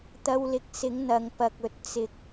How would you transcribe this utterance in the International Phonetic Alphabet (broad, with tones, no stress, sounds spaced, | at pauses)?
t̪ ɐ˧ w l ɪ˨˥ k̚ s ɪ˨˥ ŋ n̪ ɐ˨ ŋ p ɐ˨ k̚ ɵ˨ t̚ t͡s ɪ˨ k̚